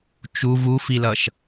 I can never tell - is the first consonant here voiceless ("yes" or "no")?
yes